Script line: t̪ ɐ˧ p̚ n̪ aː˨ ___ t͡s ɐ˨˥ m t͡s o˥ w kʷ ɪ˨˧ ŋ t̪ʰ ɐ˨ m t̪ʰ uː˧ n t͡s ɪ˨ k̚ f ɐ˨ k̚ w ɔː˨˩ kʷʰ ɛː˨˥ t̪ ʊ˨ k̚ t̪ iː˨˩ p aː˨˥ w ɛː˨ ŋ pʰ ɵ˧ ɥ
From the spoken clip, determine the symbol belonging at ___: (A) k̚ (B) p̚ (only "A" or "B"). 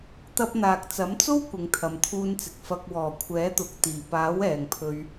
A